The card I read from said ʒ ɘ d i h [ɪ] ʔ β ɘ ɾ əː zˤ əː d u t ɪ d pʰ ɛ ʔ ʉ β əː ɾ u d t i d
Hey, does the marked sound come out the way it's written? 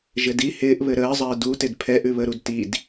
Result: no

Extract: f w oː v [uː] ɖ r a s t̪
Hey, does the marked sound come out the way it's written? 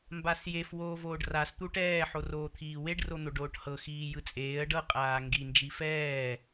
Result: no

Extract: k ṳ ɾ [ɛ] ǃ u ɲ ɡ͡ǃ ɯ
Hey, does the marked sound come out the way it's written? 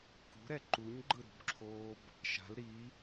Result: yes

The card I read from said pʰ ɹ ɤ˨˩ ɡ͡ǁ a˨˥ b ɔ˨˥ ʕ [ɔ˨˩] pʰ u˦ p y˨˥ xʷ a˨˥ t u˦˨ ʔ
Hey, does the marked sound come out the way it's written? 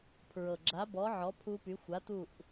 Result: no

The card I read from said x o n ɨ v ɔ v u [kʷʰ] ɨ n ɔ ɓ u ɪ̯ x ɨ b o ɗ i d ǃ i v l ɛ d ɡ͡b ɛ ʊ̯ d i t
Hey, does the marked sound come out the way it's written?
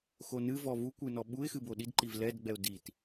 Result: no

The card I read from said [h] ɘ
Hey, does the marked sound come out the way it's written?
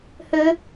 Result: yes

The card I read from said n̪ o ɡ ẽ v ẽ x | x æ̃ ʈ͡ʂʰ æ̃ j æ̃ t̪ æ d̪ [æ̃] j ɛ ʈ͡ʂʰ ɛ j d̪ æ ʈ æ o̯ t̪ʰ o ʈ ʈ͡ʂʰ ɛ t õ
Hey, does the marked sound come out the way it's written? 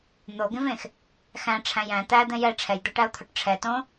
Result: no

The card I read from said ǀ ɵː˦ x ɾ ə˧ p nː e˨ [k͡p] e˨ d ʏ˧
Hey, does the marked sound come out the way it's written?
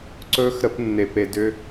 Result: no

